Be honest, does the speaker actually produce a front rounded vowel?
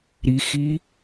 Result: no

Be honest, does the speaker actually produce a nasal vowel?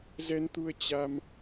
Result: no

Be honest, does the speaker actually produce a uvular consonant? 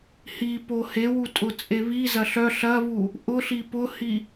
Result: no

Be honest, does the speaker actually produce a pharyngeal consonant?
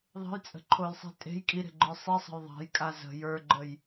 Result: no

